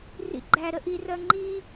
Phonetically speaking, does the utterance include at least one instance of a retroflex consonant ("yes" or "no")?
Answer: no